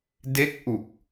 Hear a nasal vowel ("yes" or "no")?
no